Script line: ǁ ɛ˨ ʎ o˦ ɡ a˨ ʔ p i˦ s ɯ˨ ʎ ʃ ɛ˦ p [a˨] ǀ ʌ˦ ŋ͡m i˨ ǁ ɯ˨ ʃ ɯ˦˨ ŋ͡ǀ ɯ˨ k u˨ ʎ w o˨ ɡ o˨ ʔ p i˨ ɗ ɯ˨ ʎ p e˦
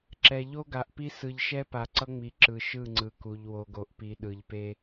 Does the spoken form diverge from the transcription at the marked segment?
no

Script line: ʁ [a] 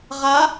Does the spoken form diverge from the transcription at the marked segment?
no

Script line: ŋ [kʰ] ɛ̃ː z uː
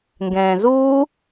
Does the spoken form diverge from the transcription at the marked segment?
yes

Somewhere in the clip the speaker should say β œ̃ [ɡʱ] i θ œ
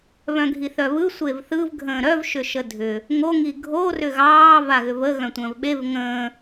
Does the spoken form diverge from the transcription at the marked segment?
no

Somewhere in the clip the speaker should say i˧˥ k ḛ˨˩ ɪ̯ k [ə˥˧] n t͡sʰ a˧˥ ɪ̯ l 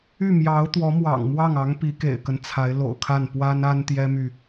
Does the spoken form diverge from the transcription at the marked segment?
yes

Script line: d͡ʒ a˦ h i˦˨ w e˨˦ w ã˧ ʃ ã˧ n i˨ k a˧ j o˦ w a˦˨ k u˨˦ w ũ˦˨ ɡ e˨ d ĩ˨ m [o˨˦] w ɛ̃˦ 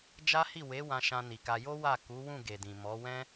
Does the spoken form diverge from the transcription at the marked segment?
yes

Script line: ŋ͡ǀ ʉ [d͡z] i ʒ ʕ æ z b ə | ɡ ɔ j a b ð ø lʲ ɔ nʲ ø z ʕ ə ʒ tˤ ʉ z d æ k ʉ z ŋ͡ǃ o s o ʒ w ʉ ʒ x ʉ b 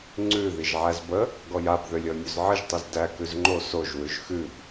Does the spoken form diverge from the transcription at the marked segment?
yes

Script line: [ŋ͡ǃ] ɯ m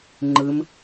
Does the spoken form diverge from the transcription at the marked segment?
no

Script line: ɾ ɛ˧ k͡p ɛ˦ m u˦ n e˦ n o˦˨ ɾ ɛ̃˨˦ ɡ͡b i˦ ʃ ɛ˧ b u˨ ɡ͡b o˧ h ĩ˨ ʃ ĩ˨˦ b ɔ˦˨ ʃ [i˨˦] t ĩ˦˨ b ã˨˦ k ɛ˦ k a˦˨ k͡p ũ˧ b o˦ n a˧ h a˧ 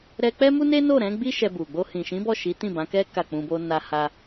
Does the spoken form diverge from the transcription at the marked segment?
no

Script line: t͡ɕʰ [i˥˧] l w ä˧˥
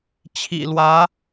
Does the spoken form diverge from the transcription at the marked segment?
yes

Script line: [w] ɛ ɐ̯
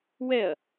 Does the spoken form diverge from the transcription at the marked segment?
no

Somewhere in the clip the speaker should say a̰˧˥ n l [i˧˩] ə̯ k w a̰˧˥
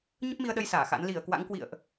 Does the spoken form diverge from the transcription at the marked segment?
no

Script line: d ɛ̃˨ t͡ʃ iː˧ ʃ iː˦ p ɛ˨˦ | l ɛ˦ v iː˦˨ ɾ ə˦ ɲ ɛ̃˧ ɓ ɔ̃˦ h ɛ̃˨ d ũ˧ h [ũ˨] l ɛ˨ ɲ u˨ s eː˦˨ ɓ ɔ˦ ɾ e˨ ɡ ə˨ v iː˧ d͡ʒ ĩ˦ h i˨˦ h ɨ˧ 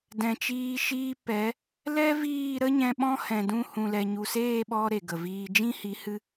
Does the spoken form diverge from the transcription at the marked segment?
no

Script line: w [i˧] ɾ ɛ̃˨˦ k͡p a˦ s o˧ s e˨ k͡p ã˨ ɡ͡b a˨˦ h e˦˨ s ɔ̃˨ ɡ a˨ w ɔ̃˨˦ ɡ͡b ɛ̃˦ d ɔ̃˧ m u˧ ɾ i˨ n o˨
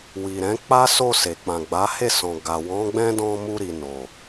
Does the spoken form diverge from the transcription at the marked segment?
yes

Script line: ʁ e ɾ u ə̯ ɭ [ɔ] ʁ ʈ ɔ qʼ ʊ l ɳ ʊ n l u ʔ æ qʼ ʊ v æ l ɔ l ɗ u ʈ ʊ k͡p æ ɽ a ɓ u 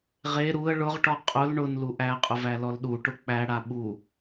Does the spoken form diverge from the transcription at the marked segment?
yes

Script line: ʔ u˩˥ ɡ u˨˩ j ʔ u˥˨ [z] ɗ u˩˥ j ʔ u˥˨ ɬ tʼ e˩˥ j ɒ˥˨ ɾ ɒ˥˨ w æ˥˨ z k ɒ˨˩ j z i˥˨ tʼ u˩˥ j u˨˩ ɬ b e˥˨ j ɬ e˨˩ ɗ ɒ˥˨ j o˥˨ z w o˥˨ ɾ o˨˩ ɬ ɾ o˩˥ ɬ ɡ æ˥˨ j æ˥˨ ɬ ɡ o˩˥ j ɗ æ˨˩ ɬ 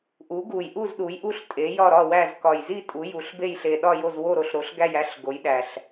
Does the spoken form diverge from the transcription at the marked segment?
no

